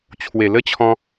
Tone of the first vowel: low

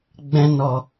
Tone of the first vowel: high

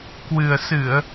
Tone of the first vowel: low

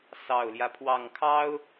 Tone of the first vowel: low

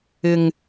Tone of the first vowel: low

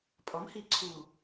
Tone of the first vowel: rising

